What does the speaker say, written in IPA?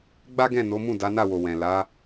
ɡ͡b a˦ ɡ ɛ̃˦˨ n o˨˦ m ũ˦˨ d a˨˦ n a˦˨ w o˨ w ɛ̃˨ l a˨˦

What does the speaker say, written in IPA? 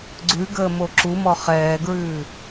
ɡ͡ǀ ʉ ɡ əː m o ǁ u m ɔ χ ɛː ɡ ɹ ʉː

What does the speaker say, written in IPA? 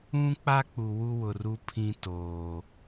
ũ˦ k͡p a˦ k͡p u˨ w u˦ w ʊ˨ r u˦ pʰ ĩ˦ t oː˨

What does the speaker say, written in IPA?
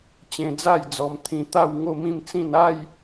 t͡ɕ ẽ˧ d͡z a˥˧ j d͡z ɔ˧ m t̪ʰ ĩ˧ t̪ a˥˧ w ŋ o˥˧ m ĩ˥˧ m t͡s ĩ˥˧ n a˥˧ j

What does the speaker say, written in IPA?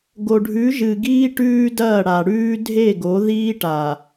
ɡ o˨ ɖʱ ʉ˨˦ ʒ ɨ˨ ɡ iː˦ ʈ ʉː˦ d ɐː˦˨ ɽ a˨ ɽ ʉː˦ dʱ e˦˨ ɡ o˨˦ ð iː˦ ʈ a˨

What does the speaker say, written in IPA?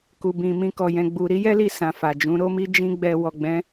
k u˧ b ĩ˧ m ĩ˦ k ɔ˧ j ɛ̃˧ ɡ͡b u˧ ɾ i˦ j ɛ˦ l i˧ s ã˨ f a˨ d͡ʒ ũ˨˦ ɾ o˦ m i˦ d͡ʒ ĩ˦ ɡ͡b ɛ˧ w ɔ˨ ɡ͡b ɛ̃˨˦

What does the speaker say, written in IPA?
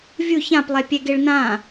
vʲ u ç ã p lˠ ɛ pʲ ɛ ɡ e ɭ n ã

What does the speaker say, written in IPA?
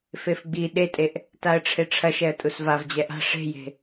f e f ɡ͡b i ɗ e tʼ e ʔ | t a ə̯ ʈ͡ʂʰ e ʈ͡ʂʰ ɐ ʃ ɛ ə̯ tʼ u s v a v d͡ʑ ɛ ʔ a̤ ʂ e̤ j e̤

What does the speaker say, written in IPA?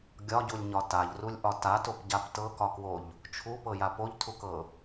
ɡʲ ɒ ɟ u lʲ ɲ ɒ t a ʎ r u lʲ ʔ ɒ t a t o p ɟ a p t ɤ k ɒ k w o ʎ | t͡ʃʰ u p ɤ j a p o ʎ tʰ u k ɤ

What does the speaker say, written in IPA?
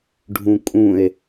ɖʱ ũ kʼ ũ e̯

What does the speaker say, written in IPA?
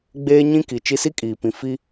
ɡ͡b eː˦ ɲ ĩ˦ k i˨ t͡ʃ i˦ s i˦ kʼ iː˨ p ĩ˨ f i˦

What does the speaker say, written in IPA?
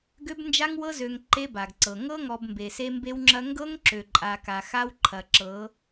ɡ ø˦ b n d͡ʒ a˦ ŋ w ɤ˦ z ø˨ ŋ ǃ e˦ b a˨ ɡ ǀ ɤ˨ ŋ ɤ˦ ŋ ɔ˨ b m b e˨ s e˦ m b e˦ w ŋ͡ǁ ɐ˦ ŋ ɡ ɤ˦ ŋ ǁ ø˨ ǃʼ a˨ k a˨ x a˦ w ǃʰ ɐ˨ ǁ ɤ˨˦

